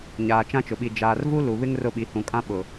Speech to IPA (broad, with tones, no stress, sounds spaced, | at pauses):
ɲ aː˨ t͡ʃ ã˦ t͡ʃ ʊ˨ ɓ i˨ d͡ʒ aː˨ r v u˦ l u˨ β ɪ˦ ŋ r ʊ˦˨ ɓ i˨ h ũ˨ kʼ ã˦ ɓ ʊ˨